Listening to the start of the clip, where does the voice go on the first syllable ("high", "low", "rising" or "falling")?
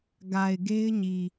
low